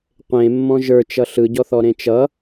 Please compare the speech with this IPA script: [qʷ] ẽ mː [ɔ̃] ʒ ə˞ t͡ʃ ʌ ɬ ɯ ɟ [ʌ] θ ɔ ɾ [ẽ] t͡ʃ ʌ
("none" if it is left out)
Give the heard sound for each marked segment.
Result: qʷ, ɔ̃, ɔ, ẽ

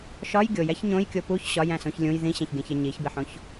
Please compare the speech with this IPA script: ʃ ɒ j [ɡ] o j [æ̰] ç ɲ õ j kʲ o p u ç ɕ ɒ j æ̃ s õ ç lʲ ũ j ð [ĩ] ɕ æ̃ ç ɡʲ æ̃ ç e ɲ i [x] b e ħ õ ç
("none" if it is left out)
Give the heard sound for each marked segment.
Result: ɡʲ, æ, ĩ, ç

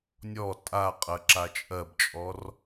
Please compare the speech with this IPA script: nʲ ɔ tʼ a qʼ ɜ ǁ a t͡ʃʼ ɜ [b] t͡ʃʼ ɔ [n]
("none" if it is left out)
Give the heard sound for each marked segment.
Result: b, r

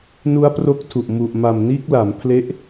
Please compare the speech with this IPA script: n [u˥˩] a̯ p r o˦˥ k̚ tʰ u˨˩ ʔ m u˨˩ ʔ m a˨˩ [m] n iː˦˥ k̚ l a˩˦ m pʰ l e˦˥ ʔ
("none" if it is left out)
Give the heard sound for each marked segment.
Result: u˦˥, m

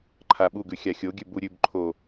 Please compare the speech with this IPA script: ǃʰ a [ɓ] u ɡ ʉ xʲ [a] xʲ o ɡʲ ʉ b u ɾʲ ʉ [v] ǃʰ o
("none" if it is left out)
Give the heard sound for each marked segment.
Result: ɓ, a, b

